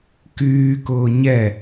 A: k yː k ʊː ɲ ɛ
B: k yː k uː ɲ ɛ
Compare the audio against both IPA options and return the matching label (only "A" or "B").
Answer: A